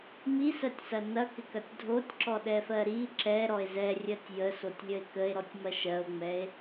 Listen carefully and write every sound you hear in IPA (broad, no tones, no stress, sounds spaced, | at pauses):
m i s ɜ tʲ s ɐ n ɐ k ɪ k ɐ tʲ dʱ o tʲ ǁ ɔ ɗ ɛ f ɜ ɾ i ǁ ɛ ɾ ɔ e̯ z ɛ rʲ ɜ tʲ j ə s o tʲ lʲ ə e̯ k ə e̯ ɾ ɔ tʲ m ɐ ʃ ɜ o̯ ŋ͡m ɛ e̯